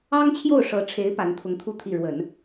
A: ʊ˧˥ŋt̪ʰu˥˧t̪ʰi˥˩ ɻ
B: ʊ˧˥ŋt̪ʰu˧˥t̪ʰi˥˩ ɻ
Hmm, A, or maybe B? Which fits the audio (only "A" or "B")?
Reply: A